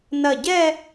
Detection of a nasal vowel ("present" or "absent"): absent